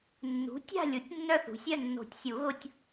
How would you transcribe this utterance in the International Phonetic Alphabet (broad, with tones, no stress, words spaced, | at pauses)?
nːṳ˩˥ tʲa̤˥˨lʲu˩˥tʲ nːœ˥˨θṳ˩˥sʲœ˥˨ nːo̤˨˩˦tʲsʲu˨˩˦ɣʊ˧tʲ